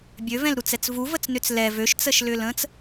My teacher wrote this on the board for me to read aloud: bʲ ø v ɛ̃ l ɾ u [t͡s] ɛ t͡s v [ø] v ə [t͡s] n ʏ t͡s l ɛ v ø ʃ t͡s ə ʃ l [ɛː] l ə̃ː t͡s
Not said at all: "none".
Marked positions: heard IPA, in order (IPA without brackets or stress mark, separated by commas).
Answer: t͡s, u, t͡s, ʏː